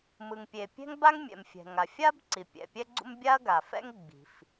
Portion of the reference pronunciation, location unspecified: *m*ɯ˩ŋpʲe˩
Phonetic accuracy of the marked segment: correct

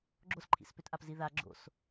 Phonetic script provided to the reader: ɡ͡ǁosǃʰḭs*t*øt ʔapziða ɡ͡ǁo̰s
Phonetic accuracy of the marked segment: incorrect: p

